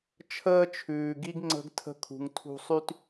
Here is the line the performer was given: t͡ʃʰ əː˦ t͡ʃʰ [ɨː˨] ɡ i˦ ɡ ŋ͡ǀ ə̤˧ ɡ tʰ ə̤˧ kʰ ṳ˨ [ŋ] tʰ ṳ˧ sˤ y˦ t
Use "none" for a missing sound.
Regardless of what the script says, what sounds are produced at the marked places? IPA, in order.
ʉː˨, ŋ

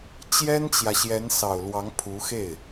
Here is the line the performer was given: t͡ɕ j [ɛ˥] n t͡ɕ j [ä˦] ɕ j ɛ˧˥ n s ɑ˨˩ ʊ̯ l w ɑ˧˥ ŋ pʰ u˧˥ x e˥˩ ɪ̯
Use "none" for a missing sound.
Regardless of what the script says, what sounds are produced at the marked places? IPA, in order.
ɛ˥, ä˨

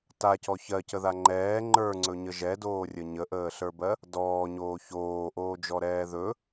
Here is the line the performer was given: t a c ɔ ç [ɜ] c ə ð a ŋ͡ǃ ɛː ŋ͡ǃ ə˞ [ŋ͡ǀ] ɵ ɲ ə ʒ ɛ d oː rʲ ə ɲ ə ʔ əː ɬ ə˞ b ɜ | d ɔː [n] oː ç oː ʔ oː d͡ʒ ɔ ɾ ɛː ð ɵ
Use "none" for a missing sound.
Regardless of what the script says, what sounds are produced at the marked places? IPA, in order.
ɜ, ŋ͡ǀ, ɲ

